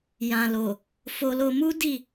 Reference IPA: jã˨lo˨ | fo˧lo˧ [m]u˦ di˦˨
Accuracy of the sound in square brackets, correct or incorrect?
correct